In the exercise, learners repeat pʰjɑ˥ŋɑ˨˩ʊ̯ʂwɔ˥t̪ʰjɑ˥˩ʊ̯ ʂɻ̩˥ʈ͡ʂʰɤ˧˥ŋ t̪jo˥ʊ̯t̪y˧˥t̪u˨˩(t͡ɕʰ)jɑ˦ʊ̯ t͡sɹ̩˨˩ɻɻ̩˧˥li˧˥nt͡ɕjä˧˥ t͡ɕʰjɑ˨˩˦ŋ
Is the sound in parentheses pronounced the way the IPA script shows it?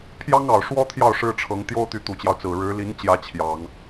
no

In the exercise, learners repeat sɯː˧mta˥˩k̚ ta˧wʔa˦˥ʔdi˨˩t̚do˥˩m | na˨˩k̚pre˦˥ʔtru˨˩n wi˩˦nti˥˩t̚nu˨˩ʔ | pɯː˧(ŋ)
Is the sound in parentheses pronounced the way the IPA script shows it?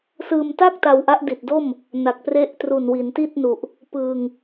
yes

